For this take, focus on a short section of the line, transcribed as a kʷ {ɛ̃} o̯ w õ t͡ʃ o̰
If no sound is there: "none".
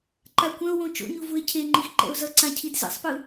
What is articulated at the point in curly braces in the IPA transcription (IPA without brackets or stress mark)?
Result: ɛ̃